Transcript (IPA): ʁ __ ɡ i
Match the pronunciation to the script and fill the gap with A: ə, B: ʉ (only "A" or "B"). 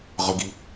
A